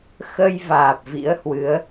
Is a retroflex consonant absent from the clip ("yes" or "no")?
yes